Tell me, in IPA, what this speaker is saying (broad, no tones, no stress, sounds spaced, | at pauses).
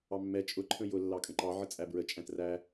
ɑ mː ɛ t͡ʃʼ ʊ ǃʰ ə̃ j ʊ lː ɑ kʼ ə̃ ǃ ɑ ʕ ə t͡sʼ æ b ɹ ə t͡ʃʼ æ̃ t r æ